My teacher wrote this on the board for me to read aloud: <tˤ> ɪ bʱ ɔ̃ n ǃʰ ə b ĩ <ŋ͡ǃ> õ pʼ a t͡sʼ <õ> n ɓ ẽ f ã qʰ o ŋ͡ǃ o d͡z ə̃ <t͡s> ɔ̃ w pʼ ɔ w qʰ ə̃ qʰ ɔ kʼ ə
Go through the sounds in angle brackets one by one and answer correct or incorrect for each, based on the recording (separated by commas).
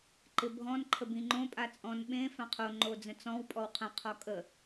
incorrect, correct, incorrect, correct